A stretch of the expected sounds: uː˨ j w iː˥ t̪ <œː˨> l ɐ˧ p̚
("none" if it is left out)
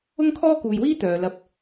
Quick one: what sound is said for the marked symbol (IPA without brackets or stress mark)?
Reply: œː˨